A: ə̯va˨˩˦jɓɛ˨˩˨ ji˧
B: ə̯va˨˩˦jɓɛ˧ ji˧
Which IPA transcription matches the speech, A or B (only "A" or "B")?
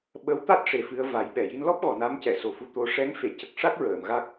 A